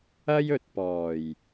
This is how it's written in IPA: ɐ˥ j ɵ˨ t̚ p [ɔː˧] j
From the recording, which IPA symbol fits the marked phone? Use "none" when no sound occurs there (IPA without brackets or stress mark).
ɔː˨˩